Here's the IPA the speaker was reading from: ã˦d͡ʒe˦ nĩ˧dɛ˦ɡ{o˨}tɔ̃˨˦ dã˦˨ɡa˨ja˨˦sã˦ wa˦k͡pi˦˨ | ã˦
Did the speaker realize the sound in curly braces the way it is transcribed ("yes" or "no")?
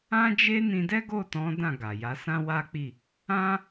no